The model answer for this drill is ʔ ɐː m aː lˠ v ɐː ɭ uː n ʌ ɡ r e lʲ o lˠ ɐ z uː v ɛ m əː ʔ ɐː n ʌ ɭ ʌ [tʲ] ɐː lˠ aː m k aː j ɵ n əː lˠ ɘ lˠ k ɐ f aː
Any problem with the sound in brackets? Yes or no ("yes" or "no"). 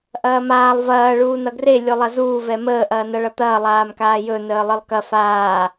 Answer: yes